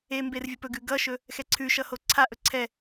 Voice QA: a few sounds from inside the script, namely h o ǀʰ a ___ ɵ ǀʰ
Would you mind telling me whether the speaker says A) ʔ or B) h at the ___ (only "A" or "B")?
A